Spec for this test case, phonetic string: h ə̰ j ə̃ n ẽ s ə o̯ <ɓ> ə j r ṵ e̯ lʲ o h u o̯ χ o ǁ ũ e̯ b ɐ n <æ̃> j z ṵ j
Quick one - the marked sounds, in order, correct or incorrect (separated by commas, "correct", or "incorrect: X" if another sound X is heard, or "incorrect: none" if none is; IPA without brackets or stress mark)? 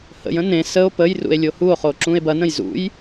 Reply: incorrect: p, incorrect: ə̃